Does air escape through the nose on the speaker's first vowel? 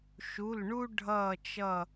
no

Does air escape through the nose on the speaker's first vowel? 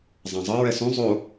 yes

